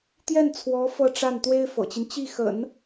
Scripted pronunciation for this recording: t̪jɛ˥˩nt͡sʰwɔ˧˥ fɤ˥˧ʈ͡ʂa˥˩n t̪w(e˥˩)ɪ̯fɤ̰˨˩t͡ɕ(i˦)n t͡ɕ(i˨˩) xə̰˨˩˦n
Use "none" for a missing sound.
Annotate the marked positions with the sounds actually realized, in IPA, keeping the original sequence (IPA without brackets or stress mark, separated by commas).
e˥, i˦, i˥˩